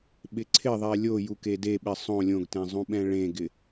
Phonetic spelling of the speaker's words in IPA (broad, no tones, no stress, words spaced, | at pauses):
ɓɪǀʰɪðˤɛ lʲoju kedeɓɪ sˤõ lʲõɡtẽ zˤũɓɛ̃ɭẽɡɪ